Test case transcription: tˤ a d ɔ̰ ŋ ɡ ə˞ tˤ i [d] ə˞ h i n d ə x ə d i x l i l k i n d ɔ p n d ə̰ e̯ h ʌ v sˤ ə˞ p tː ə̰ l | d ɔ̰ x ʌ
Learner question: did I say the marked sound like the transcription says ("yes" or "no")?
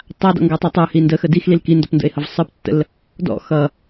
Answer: no